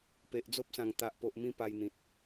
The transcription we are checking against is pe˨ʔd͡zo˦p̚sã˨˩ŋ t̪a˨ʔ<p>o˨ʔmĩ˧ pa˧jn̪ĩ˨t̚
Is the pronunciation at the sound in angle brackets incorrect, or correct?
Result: correct